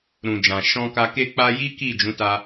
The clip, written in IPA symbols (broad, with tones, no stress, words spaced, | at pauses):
ɾũ˨d͡ʒã˨ ʃɔ̃˧ka˧ ke˧k͡pa˧ji˦ ki˦˨d͡ʒũ˨˦ta˧